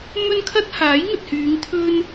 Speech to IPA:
mɵ˥nkʰɐ˥t̚ haː˨˥jŋɵ˨t̚hyː˨˧ŋ t̪ʰɵ˥n

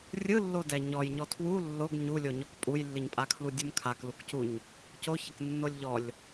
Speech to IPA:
rʲɯlːodɛ ɲɔjɲɔ tʰwu lːoɡ ɲulʲoɲɔk pʼujlːiɲpʼakʰlu dʲumkʰakluk cuɲ | coçɛk nːolʲʎɔlʲ

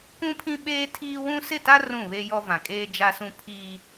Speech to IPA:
kũ˦pʰĩ˦ɓeː˦tʰiː˦ wũ˦ sɪ˦˨ta˦ rũ˦˨βe˦jɔ˦ vã˨kʼeː˦d͡ʒa˦sũ˦ pʰiː˦

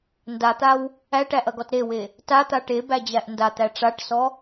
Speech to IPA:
ndat̪aw | æʈæʔɐɡɔt ɾewe | tat̪a ʈebæd͡ʑæʔ ndat̪æ ʈ͡ʂaʈsɔ

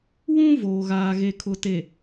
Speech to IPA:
wũ˦ voː˨ɣaː˨ɣe˨ kʰʊ˨te˨

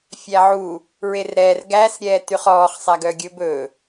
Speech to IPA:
fʲæʕu | ɹerɾɛːr ɡæs ɾʲɛːtyχɔːχ sˤæɡœɡʲɵb ɵ

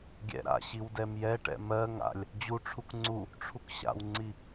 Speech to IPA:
ɡʲɛ̰ɾa̰ɕiw dɛmjɛʈɛ̰ mɜ ŋa̰lʲ | d͡ʑuʈ͡ʂʰuk ŋ͡ǀu | ʈ͡ʂʰukɕa̰wŋ͡ǀi

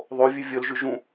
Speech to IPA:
ðˤovʲʉ vʲɵl ʒʉʒũ

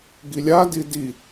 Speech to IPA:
ɡilʲadi di

